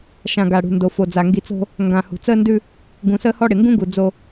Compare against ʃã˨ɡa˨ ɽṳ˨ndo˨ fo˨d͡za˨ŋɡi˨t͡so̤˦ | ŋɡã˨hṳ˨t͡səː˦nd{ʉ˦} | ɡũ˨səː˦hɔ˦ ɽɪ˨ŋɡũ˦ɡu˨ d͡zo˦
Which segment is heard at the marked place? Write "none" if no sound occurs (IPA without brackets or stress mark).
ʉ˦